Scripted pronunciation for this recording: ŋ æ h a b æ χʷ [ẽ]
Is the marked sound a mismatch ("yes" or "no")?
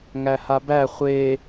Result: yes